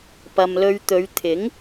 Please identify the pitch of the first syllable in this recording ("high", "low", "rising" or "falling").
low